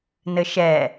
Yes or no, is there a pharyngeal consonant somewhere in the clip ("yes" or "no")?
no